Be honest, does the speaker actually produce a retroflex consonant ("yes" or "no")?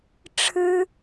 yes